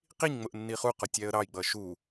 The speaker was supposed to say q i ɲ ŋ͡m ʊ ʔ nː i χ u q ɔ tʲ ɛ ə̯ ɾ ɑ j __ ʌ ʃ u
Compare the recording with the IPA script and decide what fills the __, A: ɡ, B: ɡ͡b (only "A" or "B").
B